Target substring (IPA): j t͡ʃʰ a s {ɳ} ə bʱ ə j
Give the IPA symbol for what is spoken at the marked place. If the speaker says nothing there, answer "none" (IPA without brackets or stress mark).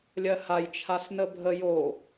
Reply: n